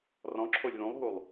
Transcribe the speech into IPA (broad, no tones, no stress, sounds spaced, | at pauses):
r ɔ̃ ǁʰ o lʲ ð ũ lˠ ɦ u lˠ